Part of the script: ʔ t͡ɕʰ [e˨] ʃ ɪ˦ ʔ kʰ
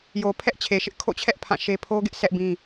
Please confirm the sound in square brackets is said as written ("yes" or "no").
yes